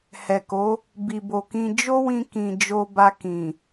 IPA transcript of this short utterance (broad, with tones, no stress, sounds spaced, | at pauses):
h ɛ˨ k o˨˦ | b i˨ b o˨ k ĩ˧ d͡ʒ o˦ w ĩ˧ k ĩ˨ d͡ʒ o˧ b a˧ k ĩ˨